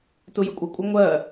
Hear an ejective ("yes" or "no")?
yes